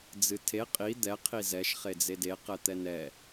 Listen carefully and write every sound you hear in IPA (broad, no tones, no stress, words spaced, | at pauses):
d͡zɨtʰe qʼi d̪ɛ qʰizɛʃ χed͡zede qɛt̪ɛnɛ